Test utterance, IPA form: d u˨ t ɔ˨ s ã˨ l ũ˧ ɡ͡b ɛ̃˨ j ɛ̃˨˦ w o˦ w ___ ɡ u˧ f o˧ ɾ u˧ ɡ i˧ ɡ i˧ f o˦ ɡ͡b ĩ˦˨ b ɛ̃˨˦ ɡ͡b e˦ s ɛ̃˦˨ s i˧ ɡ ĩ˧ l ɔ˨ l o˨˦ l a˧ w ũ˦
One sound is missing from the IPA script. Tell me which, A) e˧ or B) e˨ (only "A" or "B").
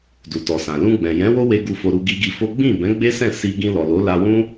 A